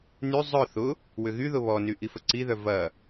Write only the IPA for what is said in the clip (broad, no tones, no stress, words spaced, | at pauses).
ny zˤœ θʊ | wʏɣyðʊ βɔny ʔifəǀiðœ vɐ